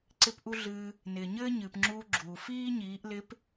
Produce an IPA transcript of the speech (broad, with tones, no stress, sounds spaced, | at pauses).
ǀ ɪ˥ p ʔ u˥ ɮ ɨː˧ | n ɪː˩ ɲ ɘː˥ ɲ ɨː˩ p ŋ͡ǁ uː˧ ɡ͡ǁ uː˩ f iː˥ ɲ iː˩˧ ʔ l ɪ˧˥ p